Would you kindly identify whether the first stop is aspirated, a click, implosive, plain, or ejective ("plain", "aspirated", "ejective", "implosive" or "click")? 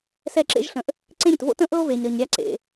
click